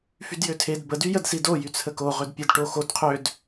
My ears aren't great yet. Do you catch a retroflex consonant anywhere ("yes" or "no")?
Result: yes